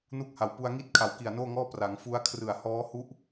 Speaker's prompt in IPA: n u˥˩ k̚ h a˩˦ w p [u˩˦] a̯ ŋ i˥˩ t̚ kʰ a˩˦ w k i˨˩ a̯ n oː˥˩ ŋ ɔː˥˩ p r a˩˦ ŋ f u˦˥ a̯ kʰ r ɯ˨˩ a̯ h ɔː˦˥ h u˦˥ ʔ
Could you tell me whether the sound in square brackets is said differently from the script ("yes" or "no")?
yes